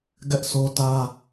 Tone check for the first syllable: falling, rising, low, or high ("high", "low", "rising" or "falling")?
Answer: high